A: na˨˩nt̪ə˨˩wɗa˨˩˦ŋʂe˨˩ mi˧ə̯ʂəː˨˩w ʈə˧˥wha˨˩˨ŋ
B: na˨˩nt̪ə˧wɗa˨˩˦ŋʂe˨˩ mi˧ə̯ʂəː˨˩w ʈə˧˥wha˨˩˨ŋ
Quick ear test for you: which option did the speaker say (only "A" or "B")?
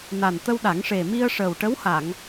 B